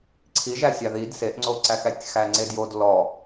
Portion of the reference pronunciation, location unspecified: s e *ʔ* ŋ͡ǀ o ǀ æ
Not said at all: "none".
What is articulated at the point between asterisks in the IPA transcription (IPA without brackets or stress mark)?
ʔ